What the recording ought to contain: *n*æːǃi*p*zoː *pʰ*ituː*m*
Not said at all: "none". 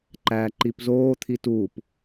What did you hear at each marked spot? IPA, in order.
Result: ǃ, p, t̪ʰ, p

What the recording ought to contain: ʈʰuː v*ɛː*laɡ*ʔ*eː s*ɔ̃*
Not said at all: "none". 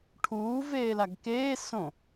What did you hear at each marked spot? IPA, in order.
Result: eː, k, õ

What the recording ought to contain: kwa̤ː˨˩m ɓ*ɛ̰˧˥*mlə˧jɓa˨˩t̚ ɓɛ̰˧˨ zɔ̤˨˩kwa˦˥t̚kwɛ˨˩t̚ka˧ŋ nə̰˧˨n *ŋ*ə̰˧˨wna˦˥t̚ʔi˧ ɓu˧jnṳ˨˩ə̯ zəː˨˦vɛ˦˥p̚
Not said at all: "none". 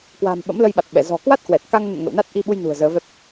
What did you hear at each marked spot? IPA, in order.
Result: ə̰˧˥, ŋ

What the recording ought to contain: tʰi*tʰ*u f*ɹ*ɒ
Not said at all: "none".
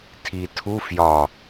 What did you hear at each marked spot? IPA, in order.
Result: tʰ, j

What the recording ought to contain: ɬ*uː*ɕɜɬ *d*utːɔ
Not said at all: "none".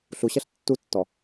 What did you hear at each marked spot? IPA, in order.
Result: u, tː

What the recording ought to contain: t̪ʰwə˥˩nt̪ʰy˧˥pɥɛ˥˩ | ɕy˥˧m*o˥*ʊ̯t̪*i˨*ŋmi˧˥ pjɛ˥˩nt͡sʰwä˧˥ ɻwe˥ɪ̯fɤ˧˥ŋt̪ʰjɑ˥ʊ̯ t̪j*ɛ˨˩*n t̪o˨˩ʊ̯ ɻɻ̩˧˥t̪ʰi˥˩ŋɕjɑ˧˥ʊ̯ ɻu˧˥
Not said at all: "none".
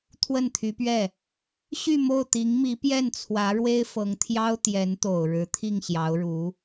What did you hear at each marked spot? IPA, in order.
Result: o˥˩, i˧˥, ɛ˧˥

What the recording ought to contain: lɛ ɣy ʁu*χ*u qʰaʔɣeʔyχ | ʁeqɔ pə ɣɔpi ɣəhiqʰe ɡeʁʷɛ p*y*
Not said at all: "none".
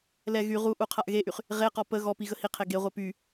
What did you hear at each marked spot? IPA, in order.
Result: ʔ, y

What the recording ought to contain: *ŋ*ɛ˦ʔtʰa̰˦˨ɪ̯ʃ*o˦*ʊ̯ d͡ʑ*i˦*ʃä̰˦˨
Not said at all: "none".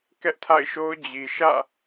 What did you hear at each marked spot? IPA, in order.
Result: k, o˦, i˨

